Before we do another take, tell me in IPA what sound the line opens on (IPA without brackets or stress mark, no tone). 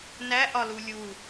n